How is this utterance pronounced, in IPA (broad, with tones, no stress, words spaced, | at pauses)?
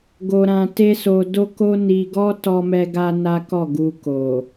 ɡo˦ɾã˦ te˦so˧ do˦ko˦ni˧ ɡɔ˦tɔ˧mɛ˧ɡa˧ na˦kɔ˦˨ ɡu˧ko˨